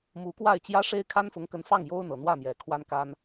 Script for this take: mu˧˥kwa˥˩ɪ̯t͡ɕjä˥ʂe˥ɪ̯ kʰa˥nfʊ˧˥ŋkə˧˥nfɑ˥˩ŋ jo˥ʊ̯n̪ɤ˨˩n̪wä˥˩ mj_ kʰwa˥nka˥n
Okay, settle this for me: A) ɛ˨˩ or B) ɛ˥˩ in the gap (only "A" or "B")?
A